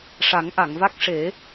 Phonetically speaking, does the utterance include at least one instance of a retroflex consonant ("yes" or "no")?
yes